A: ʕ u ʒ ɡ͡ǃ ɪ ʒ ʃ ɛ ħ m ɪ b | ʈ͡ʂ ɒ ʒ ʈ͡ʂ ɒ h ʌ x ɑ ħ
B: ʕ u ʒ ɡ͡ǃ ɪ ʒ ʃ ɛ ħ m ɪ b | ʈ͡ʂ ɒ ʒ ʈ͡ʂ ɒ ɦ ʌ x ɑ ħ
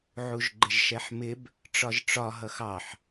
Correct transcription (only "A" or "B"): B